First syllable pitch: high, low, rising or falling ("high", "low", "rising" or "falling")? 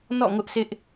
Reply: falling